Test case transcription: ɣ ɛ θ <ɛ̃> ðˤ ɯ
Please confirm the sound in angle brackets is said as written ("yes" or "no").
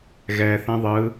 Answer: yes